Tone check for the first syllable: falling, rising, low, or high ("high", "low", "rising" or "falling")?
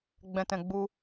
low